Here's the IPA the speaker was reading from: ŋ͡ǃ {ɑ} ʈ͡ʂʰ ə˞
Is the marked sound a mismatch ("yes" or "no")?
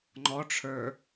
yes